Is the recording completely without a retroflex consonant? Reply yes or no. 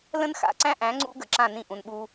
yes